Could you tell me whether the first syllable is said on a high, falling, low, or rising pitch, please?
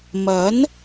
rising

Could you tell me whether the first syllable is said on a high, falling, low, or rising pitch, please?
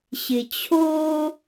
low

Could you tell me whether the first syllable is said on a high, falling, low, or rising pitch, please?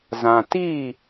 low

